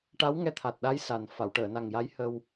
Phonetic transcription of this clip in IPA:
ʈa˧˥wŋɛ˧t̪ʰa˨˩t̚ɗa˧˥j sa˨˩n fa˨˩˨wʈəː˨˩˨na˨˩ŋja˧˥j hə˧w

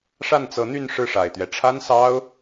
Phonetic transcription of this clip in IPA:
ʂa˥˩nt͡sɤ˧˥n̪y˥˧n ʂɻ̩˥˩ʂa˨˩ɪ̯t̪ɥɛ˦ ʈ͡ʂʰa˥nsɑ˥ʊ̯

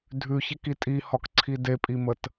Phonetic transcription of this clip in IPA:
dʱʉçeki tʼihɒkǀʰi depʼimət

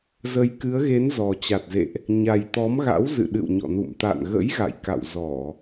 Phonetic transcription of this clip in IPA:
zə˨˦jkɨ˨˦ə̯ɣe˨˦n zɔ˨˩t͡ɕa˨˩t̚zḛ˧˨ʔ | ɲa˨˩jt̪ɔ˨˦mɣa̰˧˥w zɨ̰˧˨ɗɨ̰˧˨wɲɔ̰˧˨nṵ˧˨m t̪a̰˧˨nɣə̰˧˥jɣa̰˧˨j ka̰˧˨wzɔ˧˩˨

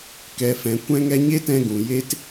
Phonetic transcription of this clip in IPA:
kɛ˨fɛ̃˨ kʷɛ̃˧ŋɛ˧ ɲe˦tɛ̃˧ɡũ˨ je˦t

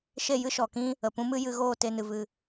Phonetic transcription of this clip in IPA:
ʃe˦˨jɨ˦ʃɔ˨kĩ˦ | ə˨pũ˦mɨ˦ jɨ˧ɣoː˦˨ te˦nɨ˧vɨ˦˨

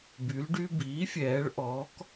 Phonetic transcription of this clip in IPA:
by˩˧lɖy˧ biː˩˥fʲɛː˩˧ɭ ʔɔː˩˧k

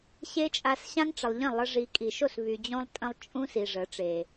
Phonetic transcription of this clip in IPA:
ɕe˦t͡ʃʼa˧s ɕã˦ŋʈ͡ʂə˨lˠʎə̃˦˨lˠə˧ ʐi˧ kʼi˨ʃo˦˨s βy˨d͡ʑõ˧lˠtʼə̃˧lˠ t͡ʃʼũ˦ si˨ʐə˨˦ʈ͡ʂe˨

